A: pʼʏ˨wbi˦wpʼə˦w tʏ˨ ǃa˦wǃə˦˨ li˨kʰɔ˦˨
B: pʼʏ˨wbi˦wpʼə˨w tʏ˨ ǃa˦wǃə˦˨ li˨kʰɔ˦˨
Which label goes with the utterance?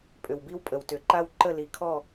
B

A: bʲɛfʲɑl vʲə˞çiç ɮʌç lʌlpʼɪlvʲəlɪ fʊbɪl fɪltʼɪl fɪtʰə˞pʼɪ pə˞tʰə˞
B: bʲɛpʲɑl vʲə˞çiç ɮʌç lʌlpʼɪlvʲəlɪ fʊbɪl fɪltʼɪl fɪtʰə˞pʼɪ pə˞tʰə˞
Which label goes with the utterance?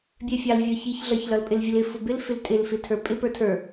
A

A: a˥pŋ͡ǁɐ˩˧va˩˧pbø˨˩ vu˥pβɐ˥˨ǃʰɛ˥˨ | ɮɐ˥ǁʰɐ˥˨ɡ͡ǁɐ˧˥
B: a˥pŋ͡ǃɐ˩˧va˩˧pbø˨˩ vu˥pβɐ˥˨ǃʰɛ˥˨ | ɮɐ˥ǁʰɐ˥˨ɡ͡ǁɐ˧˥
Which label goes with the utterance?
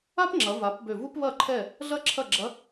A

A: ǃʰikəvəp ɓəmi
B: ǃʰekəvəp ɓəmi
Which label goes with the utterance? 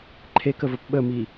B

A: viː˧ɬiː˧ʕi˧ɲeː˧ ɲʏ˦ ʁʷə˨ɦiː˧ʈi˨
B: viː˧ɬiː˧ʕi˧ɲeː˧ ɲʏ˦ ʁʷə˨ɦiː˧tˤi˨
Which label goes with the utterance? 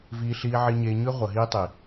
B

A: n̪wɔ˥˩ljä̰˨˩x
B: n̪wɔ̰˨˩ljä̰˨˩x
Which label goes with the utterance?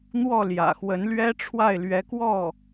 A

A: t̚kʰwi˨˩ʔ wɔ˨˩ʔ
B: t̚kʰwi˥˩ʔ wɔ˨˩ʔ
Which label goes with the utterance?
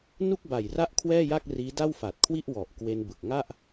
B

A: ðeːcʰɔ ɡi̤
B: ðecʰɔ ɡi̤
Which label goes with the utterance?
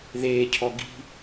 A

